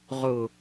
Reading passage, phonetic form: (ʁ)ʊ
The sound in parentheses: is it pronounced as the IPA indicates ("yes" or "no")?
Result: yes